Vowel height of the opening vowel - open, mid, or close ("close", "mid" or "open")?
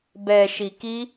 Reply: mid